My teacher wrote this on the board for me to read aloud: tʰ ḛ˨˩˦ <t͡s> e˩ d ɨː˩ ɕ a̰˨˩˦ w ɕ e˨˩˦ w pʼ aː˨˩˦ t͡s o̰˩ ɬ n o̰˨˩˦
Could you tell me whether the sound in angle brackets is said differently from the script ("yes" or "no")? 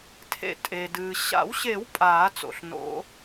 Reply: yes